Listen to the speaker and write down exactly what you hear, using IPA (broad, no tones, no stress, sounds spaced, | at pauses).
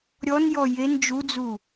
ɾʲ ɔ n j ɔ j e n d͡ʒ u d͡z u